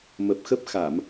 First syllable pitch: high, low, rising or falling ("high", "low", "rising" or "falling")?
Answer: low